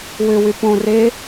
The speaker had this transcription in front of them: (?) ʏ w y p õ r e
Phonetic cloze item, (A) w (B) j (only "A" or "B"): A